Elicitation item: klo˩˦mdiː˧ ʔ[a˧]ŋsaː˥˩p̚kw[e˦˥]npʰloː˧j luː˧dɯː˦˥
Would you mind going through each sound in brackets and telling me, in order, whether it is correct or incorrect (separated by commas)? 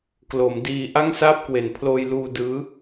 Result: incorrect, incorrect